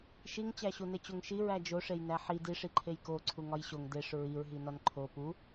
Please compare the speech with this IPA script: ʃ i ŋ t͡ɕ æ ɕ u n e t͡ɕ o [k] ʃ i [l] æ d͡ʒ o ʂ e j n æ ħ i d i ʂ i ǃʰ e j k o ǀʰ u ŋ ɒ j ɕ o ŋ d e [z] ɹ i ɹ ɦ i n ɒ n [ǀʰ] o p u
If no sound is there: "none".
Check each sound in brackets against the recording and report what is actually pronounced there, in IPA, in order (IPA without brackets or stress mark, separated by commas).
ŋ, ɹ, ʂ, ǃʰ